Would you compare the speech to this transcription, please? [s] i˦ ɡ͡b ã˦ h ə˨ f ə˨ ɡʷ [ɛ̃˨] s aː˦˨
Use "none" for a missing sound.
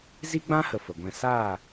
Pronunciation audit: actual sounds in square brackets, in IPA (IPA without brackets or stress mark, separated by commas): z, ɛ̃˧